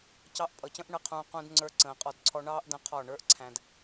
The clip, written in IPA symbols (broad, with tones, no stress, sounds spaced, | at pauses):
c ɑ˧ ʔ pʼ ʌ˨ c ə̃˦ ʔ ɳ ə˦˨ qʰ ũː˧ q ũ˧ d ŋ͡ǀ ə˞˧ ǀ ə̃ː˨ qʼ ɔ˧ d ǀʰ ɔ˦ ɳ ɑː˦ ʔ d ə̃˧ qʰ ɔ˦˨ ɳ ə˞˦ ʔ ǀʰ æ̃˨ d